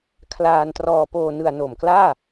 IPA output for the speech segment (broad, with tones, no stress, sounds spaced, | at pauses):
kʰ l aː˧ n t r ɔː˧ p oː˧ n ɯ˧ a̯ n o˨˩ m k l aː˥˩